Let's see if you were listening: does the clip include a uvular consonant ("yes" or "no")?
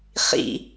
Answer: yes